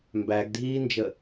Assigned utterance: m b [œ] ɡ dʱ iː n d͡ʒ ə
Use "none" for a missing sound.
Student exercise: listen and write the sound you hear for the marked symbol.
æ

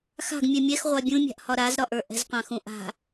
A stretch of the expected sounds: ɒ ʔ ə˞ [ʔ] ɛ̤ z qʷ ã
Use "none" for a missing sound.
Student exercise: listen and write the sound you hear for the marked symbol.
ʔ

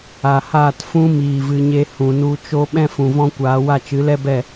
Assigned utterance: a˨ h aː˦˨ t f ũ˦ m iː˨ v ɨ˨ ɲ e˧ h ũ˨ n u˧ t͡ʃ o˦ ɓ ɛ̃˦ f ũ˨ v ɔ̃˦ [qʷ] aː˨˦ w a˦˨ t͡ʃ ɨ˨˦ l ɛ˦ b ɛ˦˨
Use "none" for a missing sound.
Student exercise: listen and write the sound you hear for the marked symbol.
kʷ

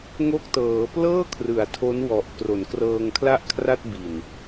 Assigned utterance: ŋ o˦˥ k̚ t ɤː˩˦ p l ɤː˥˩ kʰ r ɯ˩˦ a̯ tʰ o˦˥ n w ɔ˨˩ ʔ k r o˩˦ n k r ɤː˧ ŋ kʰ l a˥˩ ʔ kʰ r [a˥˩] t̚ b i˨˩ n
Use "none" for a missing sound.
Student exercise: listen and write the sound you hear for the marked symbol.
a˥˩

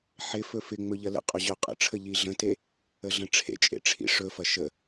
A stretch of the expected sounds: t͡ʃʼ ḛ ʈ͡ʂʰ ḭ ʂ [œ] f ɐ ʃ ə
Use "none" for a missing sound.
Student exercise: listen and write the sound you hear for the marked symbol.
ɵ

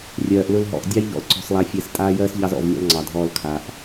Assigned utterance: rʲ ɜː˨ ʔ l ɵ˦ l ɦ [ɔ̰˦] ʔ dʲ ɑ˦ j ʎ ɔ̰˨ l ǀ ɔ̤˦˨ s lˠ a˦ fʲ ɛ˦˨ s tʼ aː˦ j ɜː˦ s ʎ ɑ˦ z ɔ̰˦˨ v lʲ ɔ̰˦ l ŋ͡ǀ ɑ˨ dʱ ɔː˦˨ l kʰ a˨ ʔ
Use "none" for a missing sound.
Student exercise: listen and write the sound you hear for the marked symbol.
ɔ̰˨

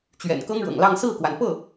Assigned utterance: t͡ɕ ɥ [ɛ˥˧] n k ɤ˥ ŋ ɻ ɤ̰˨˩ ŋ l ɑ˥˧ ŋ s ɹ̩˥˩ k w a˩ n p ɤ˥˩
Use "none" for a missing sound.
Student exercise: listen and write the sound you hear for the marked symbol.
ɛ̰˨˩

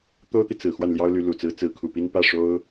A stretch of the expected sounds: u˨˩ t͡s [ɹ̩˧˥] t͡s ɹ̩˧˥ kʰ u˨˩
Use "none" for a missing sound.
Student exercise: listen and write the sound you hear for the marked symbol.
ɹ̩˧˥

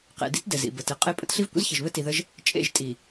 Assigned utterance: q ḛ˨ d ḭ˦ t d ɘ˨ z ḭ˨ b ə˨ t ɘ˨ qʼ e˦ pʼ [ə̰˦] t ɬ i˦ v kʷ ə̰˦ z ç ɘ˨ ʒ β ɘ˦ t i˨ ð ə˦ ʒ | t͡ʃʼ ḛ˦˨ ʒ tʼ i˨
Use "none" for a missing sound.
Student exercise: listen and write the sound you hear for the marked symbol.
ə̰˦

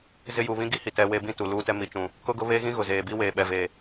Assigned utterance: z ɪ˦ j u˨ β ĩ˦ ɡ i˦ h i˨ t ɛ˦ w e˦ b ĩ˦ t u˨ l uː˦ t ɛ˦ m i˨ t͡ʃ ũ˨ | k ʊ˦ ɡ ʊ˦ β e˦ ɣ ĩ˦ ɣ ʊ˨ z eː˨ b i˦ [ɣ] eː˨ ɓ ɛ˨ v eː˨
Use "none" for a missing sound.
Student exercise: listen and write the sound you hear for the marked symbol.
w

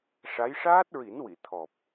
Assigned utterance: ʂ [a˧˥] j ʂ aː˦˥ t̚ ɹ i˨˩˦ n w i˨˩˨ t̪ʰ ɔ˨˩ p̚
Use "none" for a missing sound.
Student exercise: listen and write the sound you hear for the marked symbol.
a˧˥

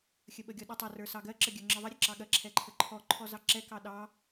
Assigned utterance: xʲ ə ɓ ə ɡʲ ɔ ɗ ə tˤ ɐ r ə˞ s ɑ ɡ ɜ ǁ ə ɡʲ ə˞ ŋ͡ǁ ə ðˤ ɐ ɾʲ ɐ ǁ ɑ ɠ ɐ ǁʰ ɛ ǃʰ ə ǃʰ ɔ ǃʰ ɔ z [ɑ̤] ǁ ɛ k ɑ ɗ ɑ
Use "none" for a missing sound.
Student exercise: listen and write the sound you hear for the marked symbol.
ɑ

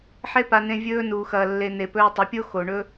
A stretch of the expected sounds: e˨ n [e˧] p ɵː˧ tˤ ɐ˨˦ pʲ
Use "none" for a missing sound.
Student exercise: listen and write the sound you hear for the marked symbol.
e˨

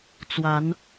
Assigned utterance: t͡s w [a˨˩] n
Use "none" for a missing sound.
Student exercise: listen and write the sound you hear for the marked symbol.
a˨˦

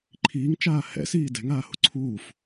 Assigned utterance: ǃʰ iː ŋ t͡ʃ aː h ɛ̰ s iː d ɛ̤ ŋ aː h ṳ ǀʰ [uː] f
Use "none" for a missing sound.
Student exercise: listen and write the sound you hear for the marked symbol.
uː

